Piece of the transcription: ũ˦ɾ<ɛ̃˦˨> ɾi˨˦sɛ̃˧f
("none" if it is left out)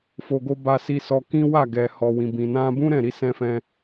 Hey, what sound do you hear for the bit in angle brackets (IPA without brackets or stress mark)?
ɛ̃˦˨